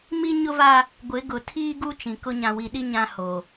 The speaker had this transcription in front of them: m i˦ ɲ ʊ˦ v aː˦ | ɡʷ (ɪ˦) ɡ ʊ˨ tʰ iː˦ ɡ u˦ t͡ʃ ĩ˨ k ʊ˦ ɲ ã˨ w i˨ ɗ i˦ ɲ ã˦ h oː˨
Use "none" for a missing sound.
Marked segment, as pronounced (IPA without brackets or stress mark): ɪ˨˦